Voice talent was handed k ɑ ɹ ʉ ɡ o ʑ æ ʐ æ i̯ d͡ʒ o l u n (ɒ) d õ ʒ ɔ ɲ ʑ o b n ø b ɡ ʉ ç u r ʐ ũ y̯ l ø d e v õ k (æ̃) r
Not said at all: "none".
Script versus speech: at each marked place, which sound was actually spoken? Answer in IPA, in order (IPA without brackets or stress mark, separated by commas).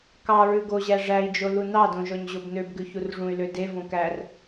ɑ, æ